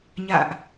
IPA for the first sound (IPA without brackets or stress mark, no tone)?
ɲ